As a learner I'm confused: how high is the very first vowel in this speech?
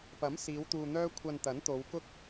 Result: low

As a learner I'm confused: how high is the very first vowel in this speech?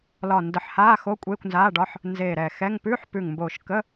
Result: low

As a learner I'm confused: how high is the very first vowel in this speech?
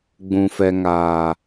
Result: high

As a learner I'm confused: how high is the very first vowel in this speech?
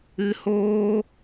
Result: high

